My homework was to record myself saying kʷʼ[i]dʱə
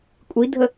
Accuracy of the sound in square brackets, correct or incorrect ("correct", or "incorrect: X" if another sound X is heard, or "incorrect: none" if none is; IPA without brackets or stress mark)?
correct